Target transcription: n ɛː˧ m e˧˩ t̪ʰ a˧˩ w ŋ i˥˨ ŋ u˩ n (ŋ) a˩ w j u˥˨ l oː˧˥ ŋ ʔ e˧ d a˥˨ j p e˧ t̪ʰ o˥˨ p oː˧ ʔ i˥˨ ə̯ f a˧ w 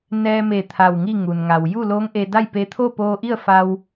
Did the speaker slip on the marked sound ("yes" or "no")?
no